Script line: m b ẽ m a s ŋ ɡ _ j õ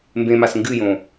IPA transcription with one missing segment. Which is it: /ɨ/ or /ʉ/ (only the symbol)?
ɨ